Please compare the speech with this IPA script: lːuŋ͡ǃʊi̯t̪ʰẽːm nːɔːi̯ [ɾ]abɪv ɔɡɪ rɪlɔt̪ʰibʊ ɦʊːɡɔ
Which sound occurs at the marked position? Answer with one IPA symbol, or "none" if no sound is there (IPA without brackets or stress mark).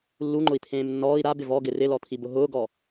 ɾ